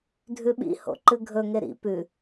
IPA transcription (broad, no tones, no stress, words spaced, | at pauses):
dʱʉɓḭ ho̰ǃɨɡʱɵ ŋeɾḭ pʉ